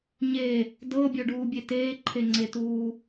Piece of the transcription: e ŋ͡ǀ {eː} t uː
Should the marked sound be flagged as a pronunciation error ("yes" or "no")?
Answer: yes